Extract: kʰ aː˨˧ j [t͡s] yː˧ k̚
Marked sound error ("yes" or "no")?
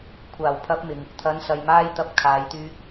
yes